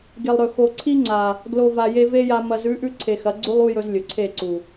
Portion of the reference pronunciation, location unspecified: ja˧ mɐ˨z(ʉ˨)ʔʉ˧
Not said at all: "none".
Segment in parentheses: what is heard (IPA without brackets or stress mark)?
ʉ˨˦